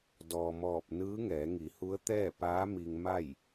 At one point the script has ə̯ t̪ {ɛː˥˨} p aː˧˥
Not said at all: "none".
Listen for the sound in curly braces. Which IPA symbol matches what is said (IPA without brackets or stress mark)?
ɛː˥˨